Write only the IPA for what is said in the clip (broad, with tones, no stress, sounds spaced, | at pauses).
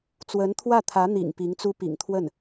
t͡s w ə˧˥ n t̪ʰ w ä˥˩ t̪ʰ ä˧˥ n̪ ḭ˨˩ ŋ p i˧˥ ŋ t͡s u˥ p ḭ˨˩ ŋ t̪ʰ w ə˥˩ n